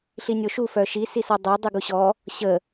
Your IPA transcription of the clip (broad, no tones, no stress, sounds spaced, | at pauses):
ɬ i nʲ o ʃ u f œ ʃ i s i s ɔ dˤ ø dˤ y ɡ u ɕ ɔ | ɕ ə